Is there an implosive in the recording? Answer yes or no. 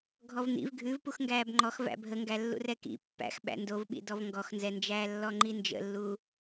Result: yes